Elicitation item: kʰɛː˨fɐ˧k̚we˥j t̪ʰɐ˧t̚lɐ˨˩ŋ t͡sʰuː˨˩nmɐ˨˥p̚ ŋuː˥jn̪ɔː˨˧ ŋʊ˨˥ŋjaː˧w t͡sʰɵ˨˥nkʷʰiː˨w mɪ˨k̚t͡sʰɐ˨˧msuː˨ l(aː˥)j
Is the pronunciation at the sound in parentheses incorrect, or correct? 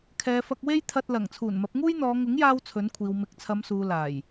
incorrect